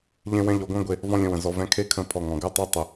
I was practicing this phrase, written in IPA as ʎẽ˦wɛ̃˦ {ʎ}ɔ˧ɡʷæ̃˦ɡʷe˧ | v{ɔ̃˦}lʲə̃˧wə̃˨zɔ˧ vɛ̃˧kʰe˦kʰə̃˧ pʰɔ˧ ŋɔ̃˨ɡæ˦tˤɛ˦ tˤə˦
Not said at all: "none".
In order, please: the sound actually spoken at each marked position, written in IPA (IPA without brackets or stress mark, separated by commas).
ʎ, ɔ̃˦